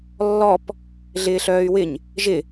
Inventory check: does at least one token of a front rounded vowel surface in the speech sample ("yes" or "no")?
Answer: yes